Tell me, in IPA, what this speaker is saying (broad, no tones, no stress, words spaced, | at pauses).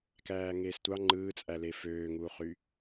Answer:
kæːŋeːstʷɑ ŋ͡ǃɯːt͡sʼæle føːŋuːχy